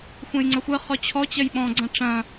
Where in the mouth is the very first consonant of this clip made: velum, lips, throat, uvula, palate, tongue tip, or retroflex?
velum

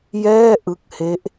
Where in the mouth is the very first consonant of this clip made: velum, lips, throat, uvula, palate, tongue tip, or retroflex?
palate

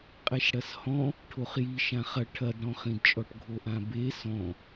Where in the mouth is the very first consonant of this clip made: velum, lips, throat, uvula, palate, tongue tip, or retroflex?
uvula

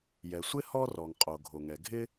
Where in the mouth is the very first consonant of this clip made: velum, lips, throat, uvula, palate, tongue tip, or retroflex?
palate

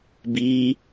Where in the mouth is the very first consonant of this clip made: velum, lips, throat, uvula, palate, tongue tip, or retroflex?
lips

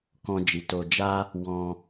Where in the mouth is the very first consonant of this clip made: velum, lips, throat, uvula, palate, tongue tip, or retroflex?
velum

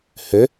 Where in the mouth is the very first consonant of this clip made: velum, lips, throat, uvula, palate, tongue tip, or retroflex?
throat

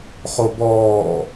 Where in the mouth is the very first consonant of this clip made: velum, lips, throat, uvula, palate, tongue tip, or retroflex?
uvula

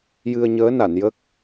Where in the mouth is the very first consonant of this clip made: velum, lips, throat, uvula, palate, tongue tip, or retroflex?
palate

